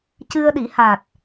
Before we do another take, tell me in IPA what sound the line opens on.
c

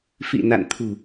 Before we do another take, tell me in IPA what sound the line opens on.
f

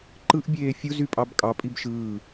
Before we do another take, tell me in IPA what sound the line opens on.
ǃ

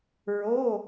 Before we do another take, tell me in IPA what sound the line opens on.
ɹ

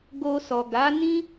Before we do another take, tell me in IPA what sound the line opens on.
ɡ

